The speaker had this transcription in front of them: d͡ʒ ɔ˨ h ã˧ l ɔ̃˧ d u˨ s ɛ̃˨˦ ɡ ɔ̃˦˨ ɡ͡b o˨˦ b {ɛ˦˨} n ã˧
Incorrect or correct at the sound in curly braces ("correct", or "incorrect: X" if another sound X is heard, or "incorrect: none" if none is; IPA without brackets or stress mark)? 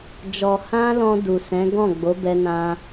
incorrect: ɛ˧